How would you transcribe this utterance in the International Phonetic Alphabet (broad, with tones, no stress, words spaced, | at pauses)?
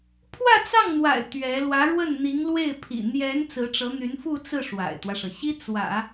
pʰwä˥˧t͡sɑ˥˩ŋn̪wa̰˨˩ɪ̯ t̪ɥɛ˧˥ lwä˧˥ɻwə˥˩nn̪i˧˥ŋlwe˥˩ɪ̯ pʰḭ˨˩n̪jɛ˧˥n t͡sɹ̩˧˥ʈ͡ʂɤ˧˥n̪y˧˥nfu˥˧ t͡sɹ̩˥˩ ʂwa̰˨˩ɪ̯t̪wä˦ʂɤ˩ ɕi˥ t͡swä̰˨˩˦